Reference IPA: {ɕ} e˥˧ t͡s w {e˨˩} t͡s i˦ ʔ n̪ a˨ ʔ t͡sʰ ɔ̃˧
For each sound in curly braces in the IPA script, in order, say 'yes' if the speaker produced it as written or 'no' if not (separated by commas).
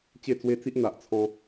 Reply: no, no